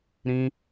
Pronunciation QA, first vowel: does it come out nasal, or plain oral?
nasal